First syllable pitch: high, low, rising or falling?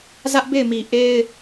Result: high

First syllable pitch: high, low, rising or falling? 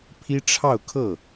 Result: high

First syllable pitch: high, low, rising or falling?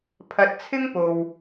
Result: low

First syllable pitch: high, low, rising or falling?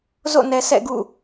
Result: falling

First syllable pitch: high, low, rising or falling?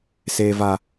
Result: low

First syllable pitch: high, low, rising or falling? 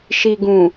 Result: low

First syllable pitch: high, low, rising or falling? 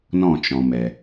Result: falling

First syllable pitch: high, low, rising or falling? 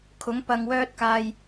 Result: rising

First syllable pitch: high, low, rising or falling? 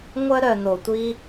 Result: high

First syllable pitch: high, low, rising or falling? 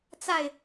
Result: falling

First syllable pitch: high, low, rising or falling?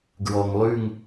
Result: low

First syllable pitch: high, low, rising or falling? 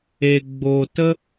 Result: low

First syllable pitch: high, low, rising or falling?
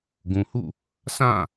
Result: low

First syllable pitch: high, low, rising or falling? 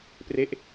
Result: falling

